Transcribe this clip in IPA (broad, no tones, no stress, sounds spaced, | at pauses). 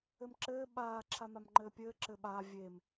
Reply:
ɘ m ǁ ɘː ɓ aː ǁʰ a m a m ŋ͡ǃ ɘː pʲ ɘː ǁ ɘː ɓ aː vʲ e m